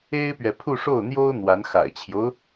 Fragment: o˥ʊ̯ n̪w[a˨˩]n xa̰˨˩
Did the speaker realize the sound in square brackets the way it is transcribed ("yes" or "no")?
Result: no